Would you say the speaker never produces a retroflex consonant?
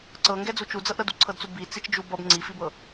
yes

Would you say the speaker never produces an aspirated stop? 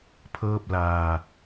no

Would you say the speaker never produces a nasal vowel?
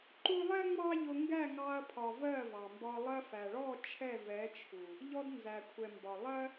yes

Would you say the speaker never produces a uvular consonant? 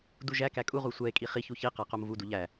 no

